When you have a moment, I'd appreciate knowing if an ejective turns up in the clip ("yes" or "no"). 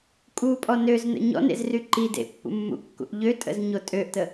yes